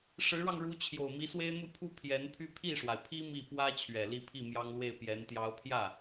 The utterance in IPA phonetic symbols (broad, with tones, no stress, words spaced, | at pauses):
ʂɻ̩˧˥ɻɑ˧ŋɻu˧˥ t͡ɕʰjo˨˩ʊ̯mi˧˥swe˥ɪ̯ n̪u˥˩pʰu˥ pʰjɛ˧˥npʰy˥˧ pʰi˥˩ʂwa˩ɪ̯pʰi˥ mi˥˩ pwä˥ t͡ɕʰɥɛ˨˩li˥˧pʰi˥˩ mjɑ˥ŋlwe˥˩ɪ̯pjɛ˧˥n t̪jɑ˧˥ʊ̯pʰjä˥˩